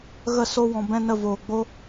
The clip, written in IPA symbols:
ɣə˦˨so˦wɔ̃˧ bɛ̃˦nə˦˨ voː˨ɡ͡bo˦

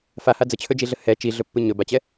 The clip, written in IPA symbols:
faha d͡zət͡ɕʰɵd͡ʒiɮə hɛ t͡ʃiɮɵpːɨ ɲɵbat͡ɕɛ

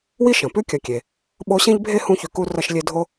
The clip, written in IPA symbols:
wi˥ʃɐ̃˩pʉ˥ kʲɐ˨kʲe˩ | ɓo˦ɕẽ˥ʎbʱe˥ hũ˦çʉ˨ku˦ rɐ˦ʃlʲe˦dʱo˥

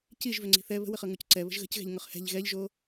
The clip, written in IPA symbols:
ciʒvʏŋ͡ǀi̤ θɛ βə̤wəχɤŋuc ǀɛβə̤ʒ ɣə̤cɣɛ̤ʎŋʊχ hɛ̤ʎ ɣɛʎʒo

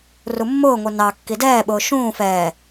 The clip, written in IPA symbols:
rumːʊːŋʷɛ nɑ kːidɛːɓʊː ʃũː fɛː

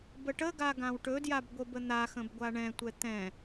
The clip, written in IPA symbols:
bəʈəɡa ɡãwʈɵdjab ɡʷəbən̪axə̃b ɡʷaɳɛ̃tʷɛ t̪ɛ̃

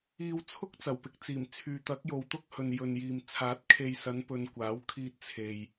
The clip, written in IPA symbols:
iː˨wt͡sʰʊ˥k̚ t͡sɐ˨˩wpɪ˨k̚t͡siː˨˩mt͡sʰyː˨ t̪ɐ˨˥k̚jo˨wt̪ʊ˥k̚hɵ˨n jɵ˨njiː˨m t͡sʰaː˨˥t̚kʰe˨jsɐ˨˧n pɵ˨n kʷaː˨˥wkʰiː˧t̚ t͡sʰe˨j

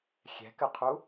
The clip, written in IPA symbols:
xʲɛ̤kɘqʰu

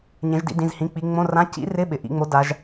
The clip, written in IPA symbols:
ɲẽ˩˧ʒdḭ˩˧ dĩ˩˧˩zhĩ˩˧˩k͡pi˩˧ ŋ͡mõ˧˥˧rã˧˥˧ cḭ˨˥rɪ˧˥˧ɓɪ˩ ʔḭ˩˧ŋ͡mo˨˥ da˩˧ʒ

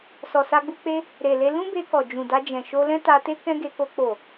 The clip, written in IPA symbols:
sɔ˨sa˧ɡ͡bu˧k͡pe˦ | ɾe˨le˧ lũ˦be˧kɔ˨ d͡ʒũ˨da˧d͡ʒɛ̃˨ ʃo˧lɛ̃˦ta˧te˦ kɛ̃˦ɡe˧ko˧ k͡po˨

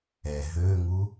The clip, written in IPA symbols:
ɛ ɦøŋu

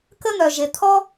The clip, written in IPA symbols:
kə˥n̪œ˩ʒe˩ t̪ʰɔ˥

